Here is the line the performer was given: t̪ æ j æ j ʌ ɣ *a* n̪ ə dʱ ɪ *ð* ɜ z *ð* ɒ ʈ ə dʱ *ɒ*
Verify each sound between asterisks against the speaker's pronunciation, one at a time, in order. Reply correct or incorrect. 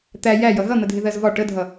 incorrect, correct, incorrect, incorrect

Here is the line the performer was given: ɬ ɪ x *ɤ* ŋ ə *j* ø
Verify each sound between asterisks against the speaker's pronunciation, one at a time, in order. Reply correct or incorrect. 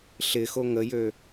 incorrect, correct

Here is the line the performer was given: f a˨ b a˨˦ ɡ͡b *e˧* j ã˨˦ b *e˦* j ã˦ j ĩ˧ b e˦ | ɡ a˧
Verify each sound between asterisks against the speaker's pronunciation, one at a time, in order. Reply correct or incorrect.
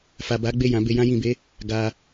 incorrect, incorrect

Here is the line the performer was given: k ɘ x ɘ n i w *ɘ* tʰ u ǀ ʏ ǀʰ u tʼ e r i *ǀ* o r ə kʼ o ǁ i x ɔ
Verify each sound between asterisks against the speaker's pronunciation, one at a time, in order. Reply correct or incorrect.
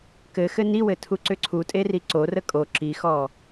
correct, correct

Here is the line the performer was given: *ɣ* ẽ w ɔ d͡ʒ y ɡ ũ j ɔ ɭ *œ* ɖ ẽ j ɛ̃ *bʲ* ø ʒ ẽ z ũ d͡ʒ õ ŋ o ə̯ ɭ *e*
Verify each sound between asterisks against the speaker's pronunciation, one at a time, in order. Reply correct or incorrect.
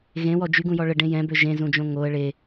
correct, incorrect, incorrect, correct

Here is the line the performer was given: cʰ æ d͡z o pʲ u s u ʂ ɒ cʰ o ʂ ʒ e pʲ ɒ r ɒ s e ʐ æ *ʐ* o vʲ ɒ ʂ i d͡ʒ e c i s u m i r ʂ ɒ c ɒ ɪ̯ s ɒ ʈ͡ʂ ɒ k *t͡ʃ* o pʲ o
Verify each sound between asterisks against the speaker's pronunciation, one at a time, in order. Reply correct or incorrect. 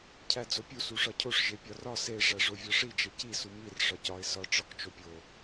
correct, correct

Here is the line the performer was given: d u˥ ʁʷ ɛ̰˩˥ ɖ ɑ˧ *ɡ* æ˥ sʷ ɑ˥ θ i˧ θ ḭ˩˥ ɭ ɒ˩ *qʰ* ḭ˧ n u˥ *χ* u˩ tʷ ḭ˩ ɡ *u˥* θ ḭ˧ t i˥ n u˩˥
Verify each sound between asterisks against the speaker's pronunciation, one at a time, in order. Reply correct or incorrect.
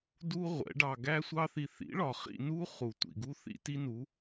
correct, incorrect, correct, correct

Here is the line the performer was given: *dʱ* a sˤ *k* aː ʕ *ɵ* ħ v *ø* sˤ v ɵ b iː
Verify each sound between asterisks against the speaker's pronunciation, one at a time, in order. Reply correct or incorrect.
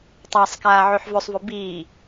incorrect, correct, incorrect, incorrect

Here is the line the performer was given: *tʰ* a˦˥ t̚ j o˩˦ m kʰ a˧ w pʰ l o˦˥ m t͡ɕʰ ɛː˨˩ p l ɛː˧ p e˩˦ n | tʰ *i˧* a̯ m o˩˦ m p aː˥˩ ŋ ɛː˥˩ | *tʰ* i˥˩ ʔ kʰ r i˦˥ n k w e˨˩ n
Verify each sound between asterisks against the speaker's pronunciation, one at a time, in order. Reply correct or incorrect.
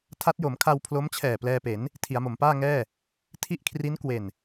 correct, incorrect, correct

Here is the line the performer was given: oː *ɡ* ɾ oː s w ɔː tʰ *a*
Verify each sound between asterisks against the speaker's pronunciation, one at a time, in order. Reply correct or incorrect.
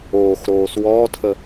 incorrect, incorrect

